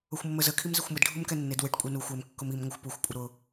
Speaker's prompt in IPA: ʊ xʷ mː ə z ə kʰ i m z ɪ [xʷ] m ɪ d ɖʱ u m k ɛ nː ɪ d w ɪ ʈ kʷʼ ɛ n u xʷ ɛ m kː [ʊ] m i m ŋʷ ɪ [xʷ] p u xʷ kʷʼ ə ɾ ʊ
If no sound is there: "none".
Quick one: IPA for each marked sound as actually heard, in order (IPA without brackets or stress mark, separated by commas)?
xʷ, ʊ, xʷ